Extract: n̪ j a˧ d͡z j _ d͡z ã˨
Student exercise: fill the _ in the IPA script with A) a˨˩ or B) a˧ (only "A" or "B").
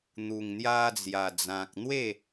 A